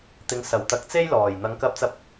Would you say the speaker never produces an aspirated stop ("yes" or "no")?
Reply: yes